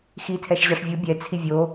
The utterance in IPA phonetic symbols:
xitʰɛʃʑɑʂ vʲu bʲɛt͡sʰi vʲo

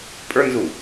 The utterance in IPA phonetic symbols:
pʼə˞nzu

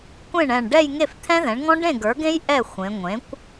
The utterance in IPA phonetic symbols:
kʷẽ˥˩ɳɛ̃˧˩ɳ ɖɛ˥˧jŋe˥˩f t̪ʰɛ̃˦˥ðɛ̃˩˥ɳŋɔ̃˦˥ ɖẽ˥˩ɡə˞˩˥ɡẽ˦˥j ʔɛ˥˩ xʷẽ˩˧ŋʷẽ˩˥kʷ

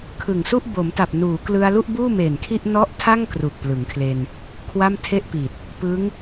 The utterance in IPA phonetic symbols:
kʰɯ˨˩ŋsu˥˩ʔ bo˩˦mta˨˩p̚ nuː˩˦klɯ˧a̯ lu˥˩ʔbuː˥˩me˨˩nkʰi˥˩ʔ nɔ˦˥ʔtʰa˥˩ŋ kru˨˩k̚plɯ˩˦ŋkʰle˧n | kʰwa˥˩mtʰe˥˩ʔpi˨˩t̚ | pɯ˦˥ŋ

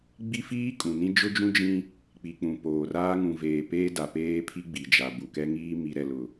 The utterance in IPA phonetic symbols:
ɡ͡bi˦fiː˦ kʼũ˨nĩ˦ d͡ʒʊ˦d͡ʒũ˦d͡ʒĩ˦ | k͡pi˨k͡pũ˨ poː˨raː˦ ŋũ˨veː˨peː˦ da˨peː˦pʰi˦ ɡ͡bi˨d͡ʒa˨ bu˨kɛ˦ŋiː˦ mi˨ɾɛ˨lʊ˨

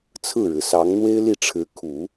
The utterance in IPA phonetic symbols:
t͡sʰɹ̩˥˩ɻɻ̩˩sɑ˧˥ŋ n̪we˥ɪ̯li˥˩ ʈ͡ʂʰɻ̩˧˥ kʰu˨˩˦

